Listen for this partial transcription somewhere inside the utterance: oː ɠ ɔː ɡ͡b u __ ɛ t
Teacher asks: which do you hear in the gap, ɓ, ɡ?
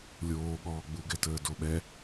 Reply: ɡ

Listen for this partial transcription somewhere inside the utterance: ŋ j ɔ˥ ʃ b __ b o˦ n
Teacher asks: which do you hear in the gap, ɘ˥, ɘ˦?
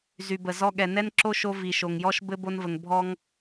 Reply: ɘ˥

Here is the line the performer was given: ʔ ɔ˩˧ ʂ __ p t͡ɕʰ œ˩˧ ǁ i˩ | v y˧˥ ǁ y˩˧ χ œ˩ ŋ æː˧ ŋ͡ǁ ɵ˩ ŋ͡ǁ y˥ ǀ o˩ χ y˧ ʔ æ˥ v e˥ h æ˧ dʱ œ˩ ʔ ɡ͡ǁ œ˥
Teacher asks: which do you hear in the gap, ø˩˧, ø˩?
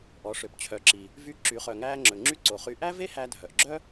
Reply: ø˩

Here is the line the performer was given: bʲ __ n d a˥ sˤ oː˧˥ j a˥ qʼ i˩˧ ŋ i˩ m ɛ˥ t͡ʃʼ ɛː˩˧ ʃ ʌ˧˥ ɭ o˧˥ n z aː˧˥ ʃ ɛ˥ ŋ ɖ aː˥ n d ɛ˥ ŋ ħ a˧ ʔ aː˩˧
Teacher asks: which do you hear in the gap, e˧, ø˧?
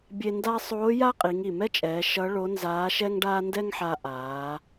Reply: e˧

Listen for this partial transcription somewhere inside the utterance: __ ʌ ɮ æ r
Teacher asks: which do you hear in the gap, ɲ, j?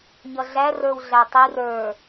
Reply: ɲ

